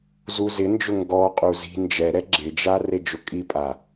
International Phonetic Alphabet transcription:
z u z ɪ n d͡ʒ ʊ ŋ ɡ ɔ qʼ u z i̤ n d͡ʒ ɛ ɾ ɛ ɡ͡ǁ ɪ d͡ʒ a r e d͡ʒ ʊ kʼ i pʼ a

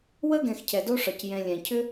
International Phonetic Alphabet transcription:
w ə˥ ɡ ɛ̃˨ x cʰ ɛ˩ d o˦ ʂ ɒ˩ c j ɛ̃˨ lʲ ɛ̃˩ cʰ ʏ˥

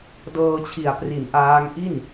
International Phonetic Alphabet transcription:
d ɤː˧ t͡ɕʰ i˨˩ a̯ p r i˨˩ n ʔ aː˦˥ ŋ ʔ i˥˩ n

